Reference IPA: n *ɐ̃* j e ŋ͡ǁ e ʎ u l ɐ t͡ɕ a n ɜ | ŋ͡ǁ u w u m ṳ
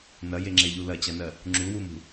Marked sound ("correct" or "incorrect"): incorrect